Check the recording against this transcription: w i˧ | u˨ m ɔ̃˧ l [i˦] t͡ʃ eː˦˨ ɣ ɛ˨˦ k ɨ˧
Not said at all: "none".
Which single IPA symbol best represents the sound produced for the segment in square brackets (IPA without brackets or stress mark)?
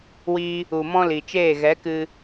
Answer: i˨